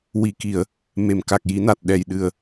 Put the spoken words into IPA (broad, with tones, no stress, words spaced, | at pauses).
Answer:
wi˨˩˨ki˨˩˨ə̯ | me˨˩˨mka˨˩k̚ ji˨˩˦na˨˩t̚ ɗɛ˨˩j ɗɨ˨˩ə̯